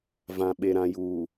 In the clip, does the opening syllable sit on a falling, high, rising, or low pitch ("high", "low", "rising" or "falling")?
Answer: low